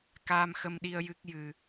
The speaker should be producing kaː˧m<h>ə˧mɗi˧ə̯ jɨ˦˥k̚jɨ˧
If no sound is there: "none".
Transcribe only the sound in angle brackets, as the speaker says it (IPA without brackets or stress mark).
x